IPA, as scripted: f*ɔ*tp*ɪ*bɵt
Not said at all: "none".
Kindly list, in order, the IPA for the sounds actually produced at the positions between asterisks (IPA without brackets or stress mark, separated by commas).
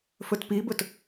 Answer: ɵ, i